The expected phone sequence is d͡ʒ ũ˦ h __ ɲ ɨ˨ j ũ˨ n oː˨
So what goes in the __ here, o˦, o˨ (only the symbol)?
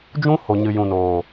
o˨